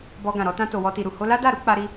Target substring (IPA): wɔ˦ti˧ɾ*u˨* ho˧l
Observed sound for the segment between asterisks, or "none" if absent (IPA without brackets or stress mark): u˨